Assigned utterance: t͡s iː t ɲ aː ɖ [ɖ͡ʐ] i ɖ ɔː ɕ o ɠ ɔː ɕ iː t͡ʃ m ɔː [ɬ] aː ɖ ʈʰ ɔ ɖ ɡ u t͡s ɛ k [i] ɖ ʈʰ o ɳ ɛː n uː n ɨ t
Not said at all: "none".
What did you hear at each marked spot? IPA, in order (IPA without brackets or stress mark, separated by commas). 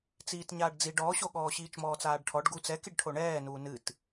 d͡z, t͡s, i